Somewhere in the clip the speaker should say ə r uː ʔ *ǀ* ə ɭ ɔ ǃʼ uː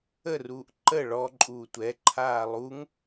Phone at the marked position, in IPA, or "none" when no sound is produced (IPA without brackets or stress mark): ǃ